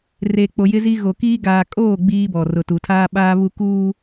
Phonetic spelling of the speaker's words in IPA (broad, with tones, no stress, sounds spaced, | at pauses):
r e˨ k͡p o˨ j ɪ˦ z i˦ ɣ o˨ k iː˦ ɡ aː˨ kʼ oː˦˨ ɡ͡b iː˦ b ɔ˨ r ʊ˨ t u˨ tʰ aː˦ ɓ aː˦ β u˦ k uː˦